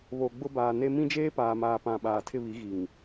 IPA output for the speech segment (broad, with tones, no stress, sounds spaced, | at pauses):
β o˨ ɡ͡b ʊ˦ b aː˨ n e˦ m ĩ˦ d͡ʒ eː˦ p aː˨ m aː˨ p ã˨ ɓ aː˨ tʰ ɪ˦˨ β i˨˦ ɣ i˨ ŋ